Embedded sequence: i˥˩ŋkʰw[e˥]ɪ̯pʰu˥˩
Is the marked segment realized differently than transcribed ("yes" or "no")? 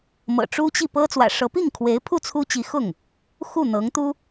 yes